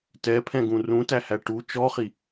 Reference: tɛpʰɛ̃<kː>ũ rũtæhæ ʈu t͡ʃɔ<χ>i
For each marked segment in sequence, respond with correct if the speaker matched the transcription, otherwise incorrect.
incorrect, correct

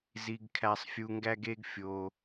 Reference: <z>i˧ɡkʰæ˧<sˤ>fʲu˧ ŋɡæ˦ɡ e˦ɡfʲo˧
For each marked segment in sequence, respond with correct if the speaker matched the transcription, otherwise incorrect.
correct, correct

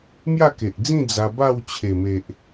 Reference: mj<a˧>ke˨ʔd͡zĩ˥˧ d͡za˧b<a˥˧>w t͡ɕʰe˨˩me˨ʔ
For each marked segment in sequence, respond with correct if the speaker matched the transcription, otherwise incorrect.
incorrect, correct

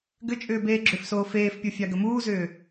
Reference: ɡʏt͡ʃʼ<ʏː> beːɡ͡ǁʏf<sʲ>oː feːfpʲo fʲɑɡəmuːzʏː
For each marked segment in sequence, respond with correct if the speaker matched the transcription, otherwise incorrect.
correct, incorrect

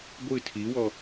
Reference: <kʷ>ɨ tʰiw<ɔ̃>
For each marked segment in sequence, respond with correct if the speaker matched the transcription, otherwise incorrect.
incorrect, incorrect

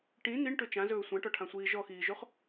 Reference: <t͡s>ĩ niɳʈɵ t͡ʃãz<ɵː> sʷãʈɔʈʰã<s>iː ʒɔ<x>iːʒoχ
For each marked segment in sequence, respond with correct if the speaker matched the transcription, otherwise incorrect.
incorrect, correct, incorrect, correct

